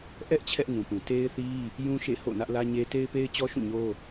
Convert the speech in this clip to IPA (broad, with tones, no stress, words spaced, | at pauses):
ʔɛ˦ʔ t͡ɕʰɛ˦ʔŋũ˨pũ˨ te˦ɪ̯θi˦ | jũ˦ʃḛ˦˨ho̰˦˨ nä˦ʔlä˦ɲe˦ te˦ɪ̯pe˦ɪ̯t͡ɕɔ˦ ʃũ˦˨ɲo˦